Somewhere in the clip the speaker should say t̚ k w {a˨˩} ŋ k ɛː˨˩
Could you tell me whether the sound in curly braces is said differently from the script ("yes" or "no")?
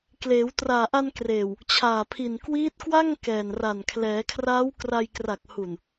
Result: yes